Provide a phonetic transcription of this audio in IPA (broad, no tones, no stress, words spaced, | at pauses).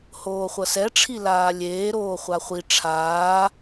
hoːχʷʌsɛʈ͡ʂʰi laːlʲeː ɾoːχʷaχʷi ʈ͡ʂʰaː